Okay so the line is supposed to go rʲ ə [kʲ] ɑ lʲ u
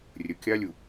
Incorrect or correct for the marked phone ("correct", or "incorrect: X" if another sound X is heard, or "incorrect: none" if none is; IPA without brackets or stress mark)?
correct